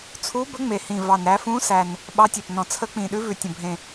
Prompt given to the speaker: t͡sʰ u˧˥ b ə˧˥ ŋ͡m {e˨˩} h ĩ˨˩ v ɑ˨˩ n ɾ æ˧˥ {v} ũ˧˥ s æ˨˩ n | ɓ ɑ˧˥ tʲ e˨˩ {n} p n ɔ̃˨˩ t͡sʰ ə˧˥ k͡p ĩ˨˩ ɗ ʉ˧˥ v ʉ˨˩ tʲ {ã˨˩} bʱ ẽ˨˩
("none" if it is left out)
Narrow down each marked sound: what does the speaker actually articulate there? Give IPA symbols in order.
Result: e˨˩, f, none, ə̃˨˩

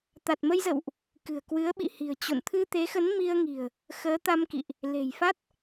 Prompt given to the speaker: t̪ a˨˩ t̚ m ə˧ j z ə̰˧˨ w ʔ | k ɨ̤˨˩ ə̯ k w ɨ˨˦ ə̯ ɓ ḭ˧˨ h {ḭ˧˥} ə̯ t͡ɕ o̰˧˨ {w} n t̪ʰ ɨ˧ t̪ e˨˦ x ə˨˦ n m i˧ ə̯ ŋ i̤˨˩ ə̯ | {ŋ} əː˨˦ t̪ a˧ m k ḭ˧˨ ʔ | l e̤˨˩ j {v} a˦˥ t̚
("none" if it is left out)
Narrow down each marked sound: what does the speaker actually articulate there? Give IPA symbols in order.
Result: i̤˨˩, none, x, f

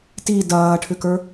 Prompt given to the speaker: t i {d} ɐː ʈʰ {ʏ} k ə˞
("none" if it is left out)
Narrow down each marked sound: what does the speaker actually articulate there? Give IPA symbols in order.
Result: d, ʏ

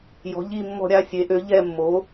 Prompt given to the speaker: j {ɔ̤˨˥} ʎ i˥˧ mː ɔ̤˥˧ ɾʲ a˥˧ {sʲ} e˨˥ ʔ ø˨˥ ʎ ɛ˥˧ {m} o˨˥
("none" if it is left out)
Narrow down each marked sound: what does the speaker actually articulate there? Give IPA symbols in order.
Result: ɔ̤˨˥, sʲ, mː

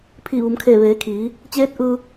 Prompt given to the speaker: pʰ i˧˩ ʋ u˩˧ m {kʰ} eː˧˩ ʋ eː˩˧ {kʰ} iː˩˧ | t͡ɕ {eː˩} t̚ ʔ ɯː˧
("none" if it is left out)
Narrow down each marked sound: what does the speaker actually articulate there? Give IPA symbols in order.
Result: kʰ, kʰ, eː˧˥

